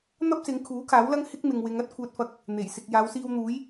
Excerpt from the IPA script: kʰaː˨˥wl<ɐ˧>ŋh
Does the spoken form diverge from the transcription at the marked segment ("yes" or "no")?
yes